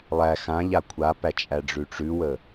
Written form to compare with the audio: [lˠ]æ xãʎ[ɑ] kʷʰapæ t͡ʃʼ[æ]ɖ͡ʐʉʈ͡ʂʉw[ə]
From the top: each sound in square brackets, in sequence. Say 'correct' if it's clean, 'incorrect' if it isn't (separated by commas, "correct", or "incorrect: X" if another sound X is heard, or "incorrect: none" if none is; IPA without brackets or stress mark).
correct, incorrect: a, correct, correct